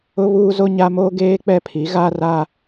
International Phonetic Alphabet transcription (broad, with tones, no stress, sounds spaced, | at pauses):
ʊ˦ β uː˦ z o˦ ɲ a˦ m oː˦ ɡ eː˦ k͡p ɛ˦˨ pʰ i˨˦ ɣ a˦ r a˦